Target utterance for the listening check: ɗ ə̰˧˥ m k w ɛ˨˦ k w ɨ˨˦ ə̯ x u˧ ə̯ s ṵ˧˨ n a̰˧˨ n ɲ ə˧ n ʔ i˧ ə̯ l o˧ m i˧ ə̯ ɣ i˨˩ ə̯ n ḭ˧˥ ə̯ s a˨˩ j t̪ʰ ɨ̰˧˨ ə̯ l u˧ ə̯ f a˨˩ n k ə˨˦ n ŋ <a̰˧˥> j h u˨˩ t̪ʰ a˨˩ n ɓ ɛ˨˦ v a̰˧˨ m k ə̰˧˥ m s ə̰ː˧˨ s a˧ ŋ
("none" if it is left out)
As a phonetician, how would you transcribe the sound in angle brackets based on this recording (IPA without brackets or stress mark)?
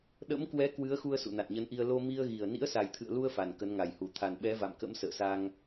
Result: a˨˩